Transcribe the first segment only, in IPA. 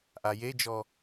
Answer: ʔ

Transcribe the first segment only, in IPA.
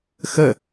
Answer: x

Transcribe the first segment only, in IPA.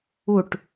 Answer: u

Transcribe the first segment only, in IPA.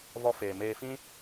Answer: v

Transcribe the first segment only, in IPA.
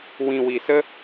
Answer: w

